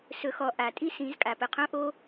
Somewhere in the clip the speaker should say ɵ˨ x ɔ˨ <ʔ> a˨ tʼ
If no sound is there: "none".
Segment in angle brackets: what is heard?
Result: ʔ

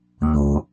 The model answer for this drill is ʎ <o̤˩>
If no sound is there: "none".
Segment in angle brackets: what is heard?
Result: ṳ˩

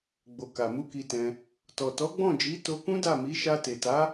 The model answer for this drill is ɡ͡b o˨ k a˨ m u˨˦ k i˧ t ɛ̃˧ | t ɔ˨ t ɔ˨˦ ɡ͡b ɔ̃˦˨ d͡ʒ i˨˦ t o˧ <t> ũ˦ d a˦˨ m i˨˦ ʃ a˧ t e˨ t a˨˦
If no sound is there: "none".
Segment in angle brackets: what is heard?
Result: k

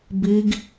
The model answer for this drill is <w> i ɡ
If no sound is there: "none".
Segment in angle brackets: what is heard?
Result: b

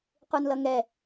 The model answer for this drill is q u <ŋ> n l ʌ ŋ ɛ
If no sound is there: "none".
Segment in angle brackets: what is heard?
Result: none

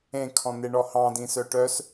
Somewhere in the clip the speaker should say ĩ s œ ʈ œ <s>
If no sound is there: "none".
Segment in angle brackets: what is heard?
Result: s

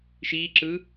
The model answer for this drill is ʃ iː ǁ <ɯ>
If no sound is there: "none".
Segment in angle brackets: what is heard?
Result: ɯ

